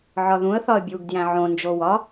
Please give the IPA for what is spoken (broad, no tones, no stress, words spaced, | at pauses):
ʕɒðũə̯ θɒə̯bʲuɡ djæ̃ʕõ nd͡ʒowɒ